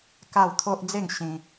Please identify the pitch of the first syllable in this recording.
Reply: falling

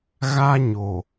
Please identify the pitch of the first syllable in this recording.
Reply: high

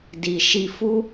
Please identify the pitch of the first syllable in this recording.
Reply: low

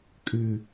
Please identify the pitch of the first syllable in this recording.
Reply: falling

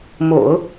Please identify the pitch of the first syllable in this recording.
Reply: low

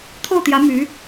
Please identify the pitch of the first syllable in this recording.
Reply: falling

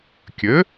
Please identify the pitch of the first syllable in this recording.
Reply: rising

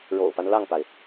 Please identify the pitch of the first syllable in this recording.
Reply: low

